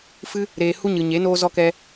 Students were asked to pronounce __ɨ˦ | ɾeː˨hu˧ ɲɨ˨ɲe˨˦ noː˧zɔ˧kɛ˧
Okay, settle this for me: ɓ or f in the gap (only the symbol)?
f